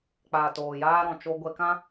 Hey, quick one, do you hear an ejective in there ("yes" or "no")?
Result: no